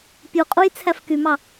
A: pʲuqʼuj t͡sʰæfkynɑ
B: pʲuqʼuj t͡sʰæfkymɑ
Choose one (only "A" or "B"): B